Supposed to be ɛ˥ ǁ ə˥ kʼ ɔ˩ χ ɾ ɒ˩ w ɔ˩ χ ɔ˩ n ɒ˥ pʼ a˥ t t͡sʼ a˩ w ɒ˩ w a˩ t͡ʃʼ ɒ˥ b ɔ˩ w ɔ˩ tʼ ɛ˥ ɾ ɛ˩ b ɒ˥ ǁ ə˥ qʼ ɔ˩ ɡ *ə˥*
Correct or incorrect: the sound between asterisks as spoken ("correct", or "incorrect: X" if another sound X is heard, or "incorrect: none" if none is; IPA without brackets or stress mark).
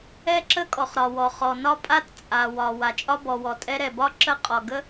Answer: correct